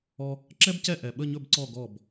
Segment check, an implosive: present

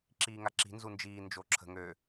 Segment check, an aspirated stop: present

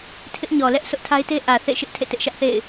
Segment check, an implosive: absent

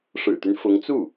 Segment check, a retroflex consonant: present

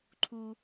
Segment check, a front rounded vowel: absent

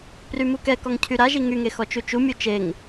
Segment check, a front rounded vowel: present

